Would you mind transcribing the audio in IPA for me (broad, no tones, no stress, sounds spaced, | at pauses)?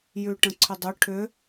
j ʉ ʈ ə̃ ǀʰ ʏ dˤ ʏ ʈʰ ʏ